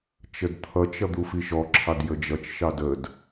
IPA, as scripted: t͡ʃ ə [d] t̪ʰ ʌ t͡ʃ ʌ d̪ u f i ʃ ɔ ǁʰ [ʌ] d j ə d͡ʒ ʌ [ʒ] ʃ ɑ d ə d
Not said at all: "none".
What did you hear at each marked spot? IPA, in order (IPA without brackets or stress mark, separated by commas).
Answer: d, ɑ, t͡ʃ